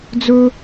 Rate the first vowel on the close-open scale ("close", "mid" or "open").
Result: mid